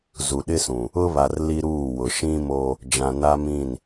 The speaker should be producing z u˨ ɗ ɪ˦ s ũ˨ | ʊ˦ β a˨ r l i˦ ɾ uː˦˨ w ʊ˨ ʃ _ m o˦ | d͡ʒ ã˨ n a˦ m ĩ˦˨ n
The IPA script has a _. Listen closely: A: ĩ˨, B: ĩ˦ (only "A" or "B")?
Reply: B